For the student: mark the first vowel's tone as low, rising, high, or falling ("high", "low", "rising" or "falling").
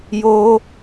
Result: high